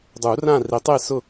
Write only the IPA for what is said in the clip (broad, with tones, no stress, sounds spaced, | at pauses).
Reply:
dˤ uː˨˩˦ r ãː˥˨ r i˨˩˦ tˤ eː˥˨ s ʊ˥˨